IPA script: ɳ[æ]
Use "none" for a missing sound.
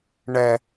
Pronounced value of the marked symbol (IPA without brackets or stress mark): ɛ